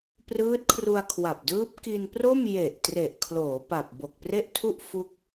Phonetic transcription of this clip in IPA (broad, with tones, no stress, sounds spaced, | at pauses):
p r ɯː˦˥ t̚ kʰ r u˧ a̯ kʰ w a˨˩ p̚ d ɯː˦˥ p̚ k i˧ n p r o˥˩ m j e˨˩ ʔ t r e˨˩ ʔ kʰ l oː˩˦ p a˨˩ p̚ b o˨˩ k̚ p r e˥˩ ʔ tʰ u˥˩ ʔ f u˥˩ k̚